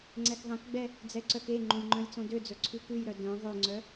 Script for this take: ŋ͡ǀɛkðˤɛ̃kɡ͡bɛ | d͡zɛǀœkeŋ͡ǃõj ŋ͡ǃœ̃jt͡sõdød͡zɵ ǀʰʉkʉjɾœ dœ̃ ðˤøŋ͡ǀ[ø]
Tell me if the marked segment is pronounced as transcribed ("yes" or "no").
no